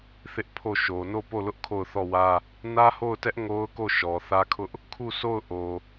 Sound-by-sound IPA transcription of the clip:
θɪ˦ʔpʰo˦˨ʃo˨ no˦˨po˦˨lʊ˦ʔ kʰo˦˨ʊ̯θɔ˦˨wä˦ | nä˦ho˦˨ʊ̯tɛ˦ʔ ŋo˦ʊ̯ko˦˨ ʃɔ˨θä˦kʰʊ˦ʔ | kʰu˦˨sʰo˦˨ʊ̯ ʔo˨

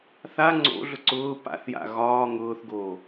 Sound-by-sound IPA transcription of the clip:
θa ŋ͡ǀo̰ɮʊ ǀʊː pa̰θja̰ ɣɒː ŋʊːθɡoː

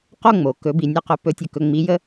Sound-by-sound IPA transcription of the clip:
qo˥˧ŋ͡mo˩ kɵ˧˥bi˧ nʲɵ˥˧qɵ˧˥ pɵ˧˥ tʲɵ˧kɵ˧ ŋ͡mi˧˥jə˥

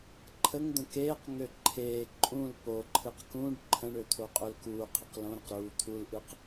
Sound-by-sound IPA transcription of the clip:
ǃʰəŋd̪ə̃ keːqŋø ǃʰeː ǃʼũl poǃʰɨq kũɖ ǃʰə̃ɳø t̪ʰoqʼølkuːqʰɨq lõɾəq ɾuːt̪ʰulʔɨq

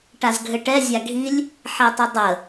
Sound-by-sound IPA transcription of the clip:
ʈazɡʱɘʈɛ zʲaɡʱilʲ | ħɛtˤɪdˤə

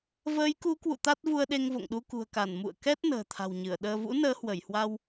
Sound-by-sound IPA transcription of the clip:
vəː˨˦jku˨˦kwṵ˧˨ t̪a˦˥t̚vu˧ə̯ɗe˧ŋ vo̰˧˨ŋɗu˧kṳ˨˩ə̯ka˧˩n mṵ˧˨ə̯kɛ˦˥t̚ nə̤ː˨˩t̪ʰa̤˨˩wɲɨ˧˩ə̯ɗəː˧ vṵ˧˥ nəː˨˦hwə˧˩jhwa˧w

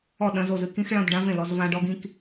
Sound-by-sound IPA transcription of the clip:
ɔ˥˩ɗɐ̃˧˥˧zo˥˩zɨ˥˧ kĩ˥xɭɐ̃˧˥˧d ɖã˥vẽ˥˩ lɔ˥zvã˥ ɖɔ˥ɡĩ˥k

